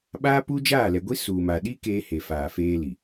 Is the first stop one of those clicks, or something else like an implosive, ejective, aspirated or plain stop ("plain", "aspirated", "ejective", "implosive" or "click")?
implosive